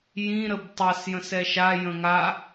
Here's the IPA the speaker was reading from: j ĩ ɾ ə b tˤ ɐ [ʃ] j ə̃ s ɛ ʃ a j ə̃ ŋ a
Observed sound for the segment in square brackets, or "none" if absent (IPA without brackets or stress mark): s